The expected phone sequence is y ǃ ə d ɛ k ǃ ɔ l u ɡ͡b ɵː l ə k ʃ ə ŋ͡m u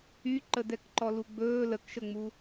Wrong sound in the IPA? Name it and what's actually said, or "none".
none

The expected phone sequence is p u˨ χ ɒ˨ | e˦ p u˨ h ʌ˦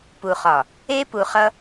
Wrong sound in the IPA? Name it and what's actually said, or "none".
h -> χ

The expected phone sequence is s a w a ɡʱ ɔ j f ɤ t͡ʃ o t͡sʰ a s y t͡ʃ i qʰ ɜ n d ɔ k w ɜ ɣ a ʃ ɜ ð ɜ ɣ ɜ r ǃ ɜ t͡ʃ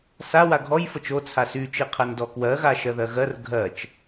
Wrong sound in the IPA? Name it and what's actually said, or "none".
ǃ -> ɡʱ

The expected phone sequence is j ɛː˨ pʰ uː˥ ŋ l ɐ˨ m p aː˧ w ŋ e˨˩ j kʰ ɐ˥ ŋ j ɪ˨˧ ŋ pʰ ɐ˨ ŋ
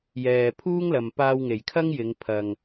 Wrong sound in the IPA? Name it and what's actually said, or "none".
none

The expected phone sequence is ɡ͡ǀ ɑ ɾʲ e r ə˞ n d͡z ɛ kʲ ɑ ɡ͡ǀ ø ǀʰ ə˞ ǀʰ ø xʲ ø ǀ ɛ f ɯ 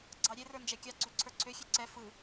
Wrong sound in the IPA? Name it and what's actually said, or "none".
d͡z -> d͡ʒ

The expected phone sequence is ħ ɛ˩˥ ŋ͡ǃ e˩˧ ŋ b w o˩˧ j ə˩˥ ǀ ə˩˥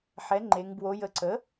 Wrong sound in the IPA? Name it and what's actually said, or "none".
none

